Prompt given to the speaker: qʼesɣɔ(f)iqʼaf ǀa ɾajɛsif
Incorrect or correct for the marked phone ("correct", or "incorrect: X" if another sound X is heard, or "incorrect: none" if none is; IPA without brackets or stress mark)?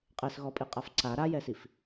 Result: incorrect: pʼ